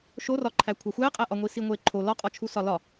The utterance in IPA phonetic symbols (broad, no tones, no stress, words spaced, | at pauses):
ʃorɒǃʰæ kʷʰæxʷæqʼæʔɒ ŋʷisiŋʷeǃʰo lɒqʼɒt͡ʃʰu sɒlɒ